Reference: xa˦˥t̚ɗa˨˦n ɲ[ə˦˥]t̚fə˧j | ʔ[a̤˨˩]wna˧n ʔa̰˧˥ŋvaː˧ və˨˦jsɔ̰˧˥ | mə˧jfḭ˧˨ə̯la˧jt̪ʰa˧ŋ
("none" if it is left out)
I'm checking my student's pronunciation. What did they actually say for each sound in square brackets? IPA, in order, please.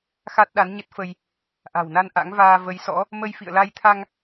ə˦˥, a̤˨˩

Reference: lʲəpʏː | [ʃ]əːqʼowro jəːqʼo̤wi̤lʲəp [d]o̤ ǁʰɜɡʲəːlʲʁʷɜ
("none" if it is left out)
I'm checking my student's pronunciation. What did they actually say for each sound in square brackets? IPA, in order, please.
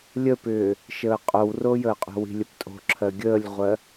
ʃ, tʼ

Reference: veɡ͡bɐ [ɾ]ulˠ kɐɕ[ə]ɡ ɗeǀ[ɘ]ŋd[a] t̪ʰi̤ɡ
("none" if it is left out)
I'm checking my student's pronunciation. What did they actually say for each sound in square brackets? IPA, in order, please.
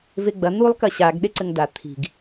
n̪, a, ɘ, a

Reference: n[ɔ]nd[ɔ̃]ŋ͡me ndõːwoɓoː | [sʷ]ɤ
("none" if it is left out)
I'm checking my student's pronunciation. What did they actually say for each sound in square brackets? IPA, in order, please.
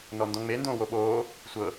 ɔ, ɔ̃, sʷ

